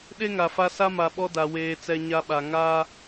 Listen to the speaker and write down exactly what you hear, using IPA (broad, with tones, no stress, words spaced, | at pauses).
ɗe˦ŋa˨fa˦ sa˦ma˨ɓɔ˦da˨ weː˦t͡sɛ˦ ɲa˦ɓa˨ ŋa˦